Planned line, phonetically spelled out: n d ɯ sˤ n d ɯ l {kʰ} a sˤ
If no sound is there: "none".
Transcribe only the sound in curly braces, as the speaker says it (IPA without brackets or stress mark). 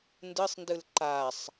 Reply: ǃ